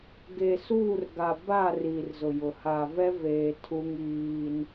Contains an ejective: no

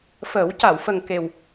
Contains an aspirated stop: no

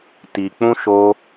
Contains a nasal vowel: yes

